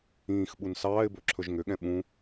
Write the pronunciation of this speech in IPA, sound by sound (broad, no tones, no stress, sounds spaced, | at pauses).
ĩː x ɓ u n s ɑː ɪ̯ b ɵ ǁʰ ɵ ʒ ŋ ʏ ɠ ɛ̃ ɓ ũ